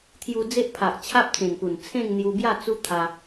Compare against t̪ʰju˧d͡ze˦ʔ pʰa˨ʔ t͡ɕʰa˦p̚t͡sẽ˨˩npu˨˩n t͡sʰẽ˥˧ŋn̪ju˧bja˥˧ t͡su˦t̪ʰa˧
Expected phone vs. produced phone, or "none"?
none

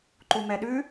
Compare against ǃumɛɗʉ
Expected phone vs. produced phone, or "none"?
none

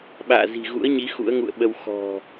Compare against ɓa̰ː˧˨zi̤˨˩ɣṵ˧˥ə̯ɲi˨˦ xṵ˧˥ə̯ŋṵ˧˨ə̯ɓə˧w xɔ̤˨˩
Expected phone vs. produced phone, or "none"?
none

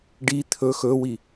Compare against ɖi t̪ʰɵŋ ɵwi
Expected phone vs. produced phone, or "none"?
ŋ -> x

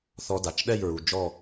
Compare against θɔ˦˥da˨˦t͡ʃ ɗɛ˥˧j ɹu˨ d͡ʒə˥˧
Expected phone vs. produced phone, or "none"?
ə˥˧ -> ɔ˥˧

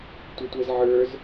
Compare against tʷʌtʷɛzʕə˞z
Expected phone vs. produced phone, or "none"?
none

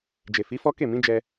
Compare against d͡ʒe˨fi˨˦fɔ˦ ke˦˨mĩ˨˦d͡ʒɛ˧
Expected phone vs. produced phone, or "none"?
none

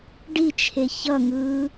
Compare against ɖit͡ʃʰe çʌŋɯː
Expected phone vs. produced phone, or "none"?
none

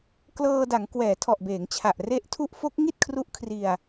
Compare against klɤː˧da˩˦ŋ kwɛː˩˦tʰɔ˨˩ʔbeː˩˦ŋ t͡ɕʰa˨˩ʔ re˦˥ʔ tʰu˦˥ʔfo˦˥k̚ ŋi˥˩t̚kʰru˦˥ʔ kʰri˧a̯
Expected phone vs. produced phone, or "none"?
none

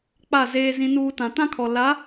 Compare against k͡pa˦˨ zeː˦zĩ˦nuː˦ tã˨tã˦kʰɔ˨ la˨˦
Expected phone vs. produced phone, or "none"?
none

